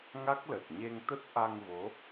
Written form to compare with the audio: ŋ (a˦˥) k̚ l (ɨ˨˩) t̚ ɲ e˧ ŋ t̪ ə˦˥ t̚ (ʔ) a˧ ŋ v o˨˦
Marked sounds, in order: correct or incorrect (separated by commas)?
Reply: correct, incorrect, correct